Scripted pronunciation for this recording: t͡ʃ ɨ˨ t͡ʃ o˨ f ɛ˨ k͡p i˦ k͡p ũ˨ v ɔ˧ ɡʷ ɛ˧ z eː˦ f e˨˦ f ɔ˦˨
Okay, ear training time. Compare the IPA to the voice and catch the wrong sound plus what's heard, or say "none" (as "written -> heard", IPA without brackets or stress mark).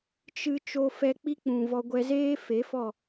none